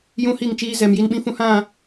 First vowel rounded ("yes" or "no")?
yes